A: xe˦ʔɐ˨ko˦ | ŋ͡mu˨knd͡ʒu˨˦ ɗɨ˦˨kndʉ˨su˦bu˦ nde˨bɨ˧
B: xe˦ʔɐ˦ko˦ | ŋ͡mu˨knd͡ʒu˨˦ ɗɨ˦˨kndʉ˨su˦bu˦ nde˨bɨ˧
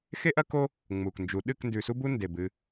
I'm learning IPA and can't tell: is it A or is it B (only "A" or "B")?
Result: B